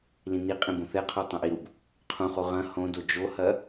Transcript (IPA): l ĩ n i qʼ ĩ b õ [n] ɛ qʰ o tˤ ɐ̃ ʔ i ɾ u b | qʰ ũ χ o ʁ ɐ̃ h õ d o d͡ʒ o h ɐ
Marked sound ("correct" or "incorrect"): incorrect